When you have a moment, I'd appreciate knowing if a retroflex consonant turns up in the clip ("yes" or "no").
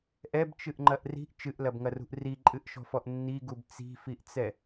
no